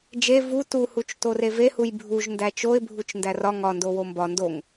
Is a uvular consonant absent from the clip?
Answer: yes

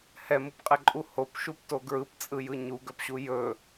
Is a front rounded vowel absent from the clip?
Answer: no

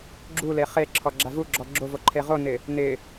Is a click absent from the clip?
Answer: no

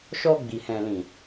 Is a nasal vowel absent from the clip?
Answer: no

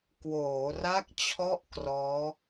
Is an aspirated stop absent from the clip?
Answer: no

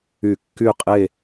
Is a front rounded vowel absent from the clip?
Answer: no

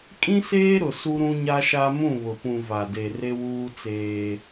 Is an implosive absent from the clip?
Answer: yes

